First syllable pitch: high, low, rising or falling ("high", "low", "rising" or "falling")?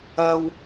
high